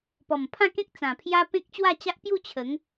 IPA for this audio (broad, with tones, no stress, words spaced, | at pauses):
pɔ˨˩mpʰã˥˧kẽ˦k̚ t͡sã˨˩pʰja˦ pẽ˦k̚t͡ɕwa˥˧t͡ɕa˦ʔ pju˥˧ t͡ɕʰə˨˦ŋ